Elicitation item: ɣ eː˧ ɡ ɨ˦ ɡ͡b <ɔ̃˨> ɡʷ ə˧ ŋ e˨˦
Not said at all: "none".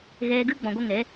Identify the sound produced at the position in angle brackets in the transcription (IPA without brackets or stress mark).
ɔ̃˨